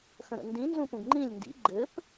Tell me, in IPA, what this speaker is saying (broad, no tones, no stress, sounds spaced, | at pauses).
x ə̃ ɾ ə̰ n d ĩ n z ũ p ũ ɡ ŋ͡ǃ ĩ lʲ n d ḭ ɡ͡ǃ ɘ p